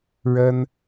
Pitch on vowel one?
high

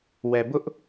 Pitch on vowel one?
low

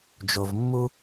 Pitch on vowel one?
low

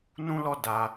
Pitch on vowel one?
high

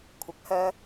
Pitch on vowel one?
low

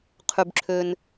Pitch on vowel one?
low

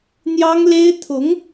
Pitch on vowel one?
high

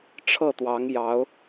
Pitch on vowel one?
falling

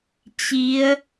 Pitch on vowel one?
rising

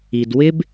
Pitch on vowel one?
low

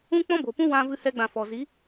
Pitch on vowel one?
high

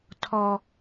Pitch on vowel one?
high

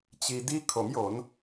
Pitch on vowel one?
low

